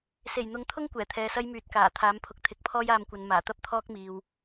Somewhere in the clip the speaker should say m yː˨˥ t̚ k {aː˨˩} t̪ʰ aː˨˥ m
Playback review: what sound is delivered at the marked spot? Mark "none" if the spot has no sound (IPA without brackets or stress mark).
aː˨˩